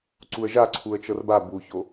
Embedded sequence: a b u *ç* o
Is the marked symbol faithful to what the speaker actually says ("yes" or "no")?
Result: yes